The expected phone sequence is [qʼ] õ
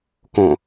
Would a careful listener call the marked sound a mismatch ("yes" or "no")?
yes